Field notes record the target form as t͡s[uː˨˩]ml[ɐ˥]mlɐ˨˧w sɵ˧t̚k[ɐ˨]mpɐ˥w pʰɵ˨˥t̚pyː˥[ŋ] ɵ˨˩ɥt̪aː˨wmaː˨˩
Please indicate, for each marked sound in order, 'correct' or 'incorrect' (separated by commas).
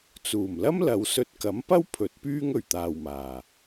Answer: correct, correct, incorrect, correct